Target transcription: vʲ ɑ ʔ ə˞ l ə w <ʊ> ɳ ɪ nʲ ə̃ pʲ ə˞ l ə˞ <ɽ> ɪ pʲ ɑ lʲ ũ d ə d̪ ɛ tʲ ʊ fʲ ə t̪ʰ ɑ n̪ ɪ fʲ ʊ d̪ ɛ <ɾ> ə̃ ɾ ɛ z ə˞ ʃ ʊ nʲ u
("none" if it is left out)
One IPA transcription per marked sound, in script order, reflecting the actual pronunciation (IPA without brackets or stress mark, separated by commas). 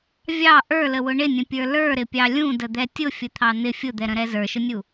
ʊ, ɾ, ɾ